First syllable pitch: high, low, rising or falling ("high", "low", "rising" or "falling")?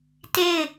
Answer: falling